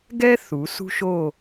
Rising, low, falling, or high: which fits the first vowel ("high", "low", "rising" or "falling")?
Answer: high